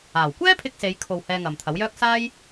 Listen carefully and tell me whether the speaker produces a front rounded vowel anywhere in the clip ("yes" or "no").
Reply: yes